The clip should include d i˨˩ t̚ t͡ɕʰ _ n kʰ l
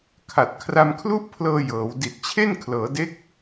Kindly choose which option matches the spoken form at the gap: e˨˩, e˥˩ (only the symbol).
e˥˩